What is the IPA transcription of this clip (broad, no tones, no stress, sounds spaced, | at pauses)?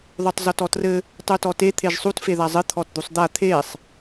ðˤ u tˤ z ɔ t ɔ t r ɘ | tˤ u t ɔ t e t̪ʰ e ʒ sˤ u t f e ð a zˤ ɘ t̪ʰ ɔ t d̪ u sˤ d̪ a t̪ʰ e sˤ